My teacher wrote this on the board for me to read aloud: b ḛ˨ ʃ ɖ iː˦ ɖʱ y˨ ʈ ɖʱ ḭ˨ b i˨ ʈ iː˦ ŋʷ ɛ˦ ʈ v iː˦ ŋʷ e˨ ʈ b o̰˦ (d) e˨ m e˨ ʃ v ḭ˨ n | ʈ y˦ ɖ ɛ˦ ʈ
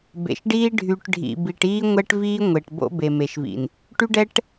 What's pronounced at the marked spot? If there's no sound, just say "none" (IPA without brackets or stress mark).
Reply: b